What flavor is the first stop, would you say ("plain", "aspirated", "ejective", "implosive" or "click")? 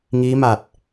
plain